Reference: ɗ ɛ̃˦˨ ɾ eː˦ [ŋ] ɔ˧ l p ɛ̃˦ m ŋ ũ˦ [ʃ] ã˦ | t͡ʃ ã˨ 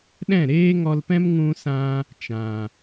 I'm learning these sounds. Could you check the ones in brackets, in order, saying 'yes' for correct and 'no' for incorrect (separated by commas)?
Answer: yes, no